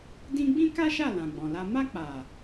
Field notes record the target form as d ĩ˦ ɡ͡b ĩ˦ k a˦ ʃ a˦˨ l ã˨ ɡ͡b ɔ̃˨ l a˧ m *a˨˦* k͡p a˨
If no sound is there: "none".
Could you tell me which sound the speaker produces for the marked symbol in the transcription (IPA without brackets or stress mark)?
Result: a˧